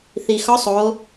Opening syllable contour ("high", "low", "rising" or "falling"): low